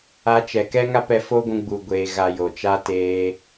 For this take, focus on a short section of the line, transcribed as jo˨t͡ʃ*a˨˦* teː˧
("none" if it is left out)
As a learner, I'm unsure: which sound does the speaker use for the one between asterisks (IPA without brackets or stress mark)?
a˦